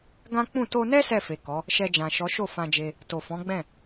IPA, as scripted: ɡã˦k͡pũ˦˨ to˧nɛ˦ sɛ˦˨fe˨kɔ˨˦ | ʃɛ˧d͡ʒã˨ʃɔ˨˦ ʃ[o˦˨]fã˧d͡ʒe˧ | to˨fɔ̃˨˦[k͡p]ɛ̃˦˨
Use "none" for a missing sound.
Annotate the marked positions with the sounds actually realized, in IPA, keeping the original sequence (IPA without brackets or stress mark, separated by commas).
o˦˨, ɡ͡b